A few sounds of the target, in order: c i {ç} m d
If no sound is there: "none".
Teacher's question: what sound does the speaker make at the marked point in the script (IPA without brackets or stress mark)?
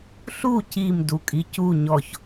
none